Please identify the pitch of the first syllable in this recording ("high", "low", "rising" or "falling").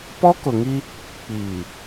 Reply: high